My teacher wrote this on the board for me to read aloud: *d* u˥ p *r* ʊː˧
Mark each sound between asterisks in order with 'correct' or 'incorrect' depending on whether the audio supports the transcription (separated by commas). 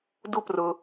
correct, correct